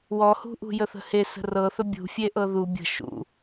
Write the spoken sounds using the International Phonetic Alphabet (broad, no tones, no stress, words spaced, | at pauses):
wɔhṳʔṳ jəθə̤he sə̤rɤθə bʲṳfʲeʔɤ ðu bʲə̤ ʃṵ